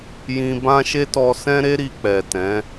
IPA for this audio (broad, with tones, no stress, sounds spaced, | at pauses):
j ĩ˧ b ã˦ ʃ e˦ t ɔ˧ s ɛ̃˦ ɾ e˦ ɾ i˧ k͡p ɛ˨ t ɛ̃˨˦